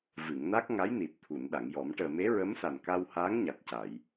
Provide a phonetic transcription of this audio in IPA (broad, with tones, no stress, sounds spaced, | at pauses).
v ɨ˨˩˨ ŋ n a˦˥ k̚ ŋ a˧˥ j n i˨˩ t̚ t̪ʰ u˨˩˨ n ɗ a˨˩˨ ŋ j ɔ˨˩˦ m ʈ əː˨˩ m e˧˥ ɹ ə˧˥ m s a˨˩ n k a˧ w h a˧˥ ŋ ɲ a˨˩ t̚ c a˨˩˨ j